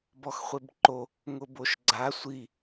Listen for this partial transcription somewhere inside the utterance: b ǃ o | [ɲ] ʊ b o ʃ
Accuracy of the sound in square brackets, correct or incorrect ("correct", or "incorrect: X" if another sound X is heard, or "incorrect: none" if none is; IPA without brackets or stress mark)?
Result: incorrect: ŋ